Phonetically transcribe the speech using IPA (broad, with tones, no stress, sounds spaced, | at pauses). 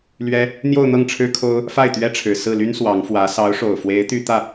l ɥ ɛ˥ | n̪ j o˥˧ ʊ̯ n̪ ɤ˥˩ ŋ ʈ͡ʂʰ ɻ̩˥ kʰ o˥ ʊ̯ | f a˥˩ ɪ̯ t̪ ɥ ɛ˥ ʈ͡ʂʰ ɻ̩˨˩ s ɹ̩˥˩ l y˥ n s w ɑ˧˥ ŋ f w ä˧˥ s ɑ˧˥ ʊ̯ ʂ o˨˩ ʊ̯ f w e˧˥ ɪ̯ t̪ y˥ t̪ ä˥˩